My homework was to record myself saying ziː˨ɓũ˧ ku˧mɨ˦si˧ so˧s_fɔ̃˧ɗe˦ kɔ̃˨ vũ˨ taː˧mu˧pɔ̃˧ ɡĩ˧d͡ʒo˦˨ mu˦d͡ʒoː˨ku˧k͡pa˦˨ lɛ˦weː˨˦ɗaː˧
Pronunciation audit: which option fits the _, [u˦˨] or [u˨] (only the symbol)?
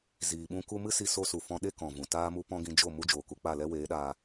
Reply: u˨